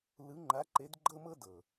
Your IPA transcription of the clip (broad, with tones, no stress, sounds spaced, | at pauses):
l ɯ˨˦ ŋ͡ǃ a˨˦ ǃ e˨˦ d ɡ͡ǃ ɤ˥ m ɤ˥ d ɤ˩